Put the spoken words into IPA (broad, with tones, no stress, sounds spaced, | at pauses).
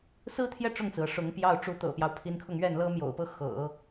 s ɹ̩˥ t̪ʰ j ɛ˥˧ ʈ͡ʂ ʊ˥˩ ŋ t͡s ɹ̩˩ ɤ˥˩ ʂ ʊ˧˥ ŋ p j ɑ˥˩ ʊ̯ ʈ͡ʂ u˧˥ t̪ ɤ̰˨˩ p j ɑ˦ ʊ̯ pʰ i˧˥ n kʰ ʊ˥˧ ŋ ɥ ɛ˥˩ n l ɤ˥ m j o̰˨˩ ʊ̯ p ɤ˥˩ x ɤ̰˨˩˦